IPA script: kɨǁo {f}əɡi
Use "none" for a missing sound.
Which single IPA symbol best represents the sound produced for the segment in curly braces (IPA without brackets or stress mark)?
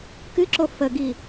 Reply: f